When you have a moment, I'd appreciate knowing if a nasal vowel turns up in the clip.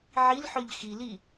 no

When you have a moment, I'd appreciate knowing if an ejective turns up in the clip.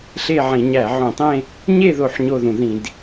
no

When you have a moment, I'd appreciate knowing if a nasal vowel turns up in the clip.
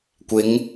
no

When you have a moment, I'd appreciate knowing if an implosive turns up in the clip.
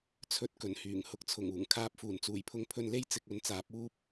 no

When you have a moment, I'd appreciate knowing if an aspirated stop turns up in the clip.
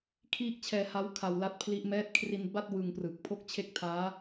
yes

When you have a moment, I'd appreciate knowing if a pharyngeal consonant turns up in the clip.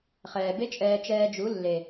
no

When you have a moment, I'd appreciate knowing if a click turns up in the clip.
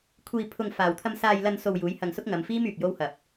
no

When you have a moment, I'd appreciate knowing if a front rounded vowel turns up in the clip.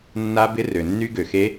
yes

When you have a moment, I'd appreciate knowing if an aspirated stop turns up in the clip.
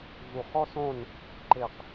no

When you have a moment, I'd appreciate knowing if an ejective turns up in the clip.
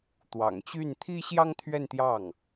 no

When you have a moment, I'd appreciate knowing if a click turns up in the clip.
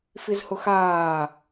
no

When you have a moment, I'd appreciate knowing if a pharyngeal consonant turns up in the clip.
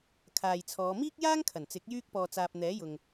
no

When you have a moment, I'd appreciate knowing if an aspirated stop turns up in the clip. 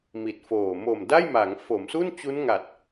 no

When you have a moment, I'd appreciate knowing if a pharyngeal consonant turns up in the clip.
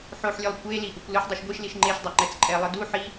yes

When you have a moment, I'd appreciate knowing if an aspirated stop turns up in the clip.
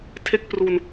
yes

